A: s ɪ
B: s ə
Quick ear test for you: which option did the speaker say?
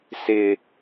A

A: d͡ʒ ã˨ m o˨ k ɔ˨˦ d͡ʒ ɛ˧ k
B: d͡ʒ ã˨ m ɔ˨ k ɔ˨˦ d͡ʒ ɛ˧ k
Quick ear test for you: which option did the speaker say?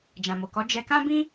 A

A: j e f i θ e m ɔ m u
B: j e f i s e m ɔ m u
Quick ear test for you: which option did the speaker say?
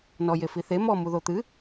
A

